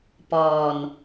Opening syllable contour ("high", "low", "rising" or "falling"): low